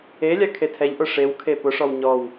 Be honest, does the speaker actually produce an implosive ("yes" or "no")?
no